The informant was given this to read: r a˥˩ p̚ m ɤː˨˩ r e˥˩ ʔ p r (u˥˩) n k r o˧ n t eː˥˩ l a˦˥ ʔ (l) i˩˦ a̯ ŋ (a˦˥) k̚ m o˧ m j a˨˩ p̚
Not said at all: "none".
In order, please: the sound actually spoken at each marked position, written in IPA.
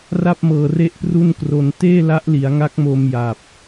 u˥˩, l, a˦˥

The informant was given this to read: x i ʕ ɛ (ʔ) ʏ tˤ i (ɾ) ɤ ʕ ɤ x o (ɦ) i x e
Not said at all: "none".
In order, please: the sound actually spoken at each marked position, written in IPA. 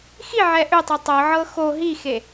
ʔ, tˤ, ɦ

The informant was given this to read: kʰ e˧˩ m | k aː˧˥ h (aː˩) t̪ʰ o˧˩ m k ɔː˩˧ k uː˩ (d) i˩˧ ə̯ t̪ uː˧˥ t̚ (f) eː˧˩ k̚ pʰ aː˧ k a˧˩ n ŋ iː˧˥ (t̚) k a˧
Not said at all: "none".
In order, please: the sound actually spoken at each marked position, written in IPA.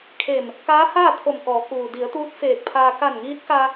aː˥˨, d, f, t̚

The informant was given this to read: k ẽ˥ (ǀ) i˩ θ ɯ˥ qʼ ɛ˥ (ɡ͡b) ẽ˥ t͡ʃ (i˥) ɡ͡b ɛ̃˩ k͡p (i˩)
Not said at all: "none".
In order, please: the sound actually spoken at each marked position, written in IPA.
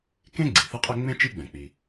ɡ͡ǀ, ŋ͡m, i˥, i˩

